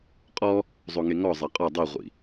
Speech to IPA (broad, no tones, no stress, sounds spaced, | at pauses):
qʼ ɔ | zˤ o ŋ e ŋ ɔ zˤ ɛ qʼ ɔ dˤ i ʁʷ ḭ